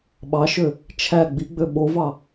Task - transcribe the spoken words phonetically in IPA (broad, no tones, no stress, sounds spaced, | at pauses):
ɓ ɑ ʃ ø | t͡ʃʰ æ ɡ͡b i ɡ͡b ø ɓ o v ɑ